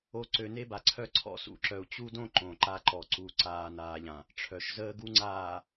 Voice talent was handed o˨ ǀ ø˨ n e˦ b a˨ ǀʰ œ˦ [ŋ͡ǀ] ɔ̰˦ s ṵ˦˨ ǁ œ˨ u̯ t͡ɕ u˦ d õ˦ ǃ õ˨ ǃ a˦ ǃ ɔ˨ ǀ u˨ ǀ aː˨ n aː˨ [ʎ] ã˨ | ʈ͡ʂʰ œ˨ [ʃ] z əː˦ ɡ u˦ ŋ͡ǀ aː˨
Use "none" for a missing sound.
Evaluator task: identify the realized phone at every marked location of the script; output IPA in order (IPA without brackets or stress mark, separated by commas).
ǀʰ, ʎ, ʃ